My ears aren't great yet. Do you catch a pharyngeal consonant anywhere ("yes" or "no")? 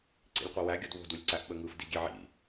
yes